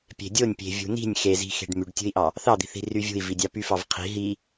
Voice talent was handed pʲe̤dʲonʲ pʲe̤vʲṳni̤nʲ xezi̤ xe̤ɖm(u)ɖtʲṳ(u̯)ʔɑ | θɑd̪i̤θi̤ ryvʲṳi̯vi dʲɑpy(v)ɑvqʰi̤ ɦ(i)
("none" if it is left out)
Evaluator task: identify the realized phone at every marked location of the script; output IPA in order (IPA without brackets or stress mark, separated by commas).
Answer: y, i̯, f, i